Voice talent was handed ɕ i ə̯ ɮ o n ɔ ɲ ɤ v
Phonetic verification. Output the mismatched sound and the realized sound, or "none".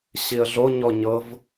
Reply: n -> ɲ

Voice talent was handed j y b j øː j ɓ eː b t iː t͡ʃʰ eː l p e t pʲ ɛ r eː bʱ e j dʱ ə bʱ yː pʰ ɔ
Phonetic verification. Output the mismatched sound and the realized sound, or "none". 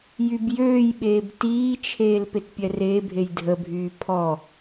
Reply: none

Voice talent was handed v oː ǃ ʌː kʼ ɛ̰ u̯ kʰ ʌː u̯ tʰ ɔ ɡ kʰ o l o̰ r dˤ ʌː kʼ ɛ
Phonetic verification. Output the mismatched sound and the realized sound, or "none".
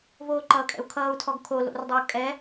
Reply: none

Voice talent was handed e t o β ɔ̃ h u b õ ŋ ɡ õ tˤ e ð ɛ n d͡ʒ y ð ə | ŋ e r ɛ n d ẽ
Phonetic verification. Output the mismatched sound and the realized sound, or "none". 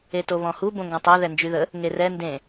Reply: none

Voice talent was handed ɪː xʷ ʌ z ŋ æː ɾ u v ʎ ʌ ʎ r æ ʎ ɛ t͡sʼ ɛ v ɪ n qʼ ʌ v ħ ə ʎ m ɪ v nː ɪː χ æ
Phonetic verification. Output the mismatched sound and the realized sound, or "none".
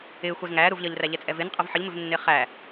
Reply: none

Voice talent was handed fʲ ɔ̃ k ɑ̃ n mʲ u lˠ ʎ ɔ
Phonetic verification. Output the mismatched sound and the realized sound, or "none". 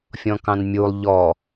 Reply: none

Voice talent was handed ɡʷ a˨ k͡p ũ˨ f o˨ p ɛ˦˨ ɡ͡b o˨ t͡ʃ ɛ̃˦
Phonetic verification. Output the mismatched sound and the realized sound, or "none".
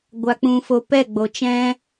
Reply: none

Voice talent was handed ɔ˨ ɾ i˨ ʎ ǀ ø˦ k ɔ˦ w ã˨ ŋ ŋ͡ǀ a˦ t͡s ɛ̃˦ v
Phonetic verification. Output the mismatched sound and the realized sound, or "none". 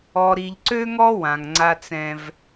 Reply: k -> ŋ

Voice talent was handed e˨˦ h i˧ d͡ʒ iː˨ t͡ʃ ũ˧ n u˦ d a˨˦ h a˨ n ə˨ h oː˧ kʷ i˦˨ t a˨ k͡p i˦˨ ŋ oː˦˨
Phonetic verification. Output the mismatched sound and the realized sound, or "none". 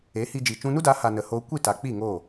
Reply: none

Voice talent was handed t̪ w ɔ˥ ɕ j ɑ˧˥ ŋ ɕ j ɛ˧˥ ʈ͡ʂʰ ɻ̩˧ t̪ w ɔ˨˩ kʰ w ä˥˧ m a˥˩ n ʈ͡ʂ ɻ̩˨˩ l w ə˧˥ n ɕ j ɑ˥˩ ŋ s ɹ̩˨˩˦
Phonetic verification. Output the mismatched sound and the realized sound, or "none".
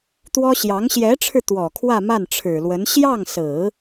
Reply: ʈ͡ʂ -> ʈ͡ʂʰ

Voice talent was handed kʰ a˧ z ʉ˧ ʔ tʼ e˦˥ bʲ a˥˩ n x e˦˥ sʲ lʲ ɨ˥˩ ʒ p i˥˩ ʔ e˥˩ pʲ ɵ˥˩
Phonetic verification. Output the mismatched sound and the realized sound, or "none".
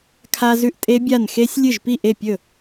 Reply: none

